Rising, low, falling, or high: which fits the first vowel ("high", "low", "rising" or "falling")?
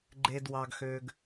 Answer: high